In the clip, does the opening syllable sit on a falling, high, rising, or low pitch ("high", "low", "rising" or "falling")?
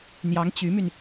rising